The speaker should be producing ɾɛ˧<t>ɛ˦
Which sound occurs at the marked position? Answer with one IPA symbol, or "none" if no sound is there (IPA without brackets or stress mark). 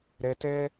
t